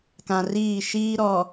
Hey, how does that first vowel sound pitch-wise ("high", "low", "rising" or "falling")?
low